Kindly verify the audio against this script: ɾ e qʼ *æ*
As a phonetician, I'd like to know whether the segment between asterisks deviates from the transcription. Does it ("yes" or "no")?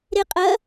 yes